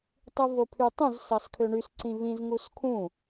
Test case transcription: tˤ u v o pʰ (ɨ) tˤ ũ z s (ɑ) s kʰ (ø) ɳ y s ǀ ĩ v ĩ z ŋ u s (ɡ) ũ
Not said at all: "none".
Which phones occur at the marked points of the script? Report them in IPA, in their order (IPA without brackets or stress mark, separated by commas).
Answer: y, ɑ, ø, kʰ